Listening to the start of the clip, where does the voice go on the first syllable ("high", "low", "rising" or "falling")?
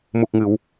low